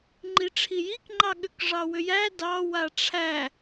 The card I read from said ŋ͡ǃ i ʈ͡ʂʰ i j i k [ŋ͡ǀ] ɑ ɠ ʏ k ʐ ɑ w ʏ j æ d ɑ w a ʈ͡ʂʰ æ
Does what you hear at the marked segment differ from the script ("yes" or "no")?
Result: yes